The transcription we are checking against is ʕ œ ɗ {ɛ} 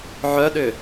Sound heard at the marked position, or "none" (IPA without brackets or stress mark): ʏ